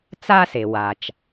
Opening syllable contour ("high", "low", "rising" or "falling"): high